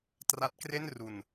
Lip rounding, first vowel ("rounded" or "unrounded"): unrounded